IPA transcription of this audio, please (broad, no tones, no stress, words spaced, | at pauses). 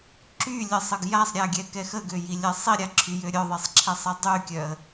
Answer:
ǁylʲəsˤəɡ jasˤɾʲaɡʲɛkɛ xəɡøjilʲɛ sˤiɾʲaǁʰyjø ɾʲœðˤesˤǁʰɛsˤi dˤykʲœə̯